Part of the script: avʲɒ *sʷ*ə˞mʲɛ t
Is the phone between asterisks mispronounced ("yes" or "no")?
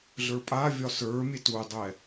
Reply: yes